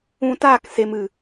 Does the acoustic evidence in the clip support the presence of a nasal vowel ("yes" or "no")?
yes